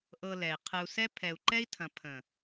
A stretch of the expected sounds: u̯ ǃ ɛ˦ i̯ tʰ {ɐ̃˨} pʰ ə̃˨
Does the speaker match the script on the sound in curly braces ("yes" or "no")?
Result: yes